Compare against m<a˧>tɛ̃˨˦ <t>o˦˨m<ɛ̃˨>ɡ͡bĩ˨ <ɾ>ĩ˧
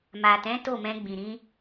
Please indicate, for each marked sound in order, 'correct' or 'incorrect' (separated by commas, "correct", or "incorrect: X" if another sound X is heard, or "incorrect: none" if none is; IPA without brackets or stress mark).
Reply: incorrect: a˨, correct, incorrect: ɛ̃˧, correct